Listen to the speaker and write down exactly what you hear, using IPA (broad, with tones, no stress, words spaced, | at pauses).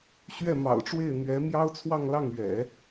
ɕɥɛ˥˩mɑ̰˨˩ʊ̯ʈ͡ʂwe˥˩ɪ̯ n̪ɥɛ˧˥ mjɑ˥ʊ̯t͡sʰwɑ˥˧ŋlɑ˥˩ŋɥɛ̰˨˩˦